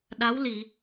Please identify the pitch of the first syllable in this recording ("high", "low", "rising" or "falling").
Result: rising